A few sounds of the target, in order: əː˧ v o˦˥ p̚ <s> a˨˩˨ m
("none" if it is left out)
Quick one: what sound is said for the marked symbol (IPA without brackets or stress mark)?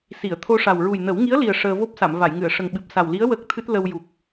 s